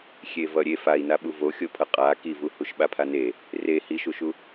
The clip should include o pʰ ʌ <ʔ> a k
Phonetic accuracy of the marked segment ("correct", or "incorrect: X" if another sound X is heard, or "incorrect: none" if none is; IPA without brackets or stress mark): incorrect: qʼ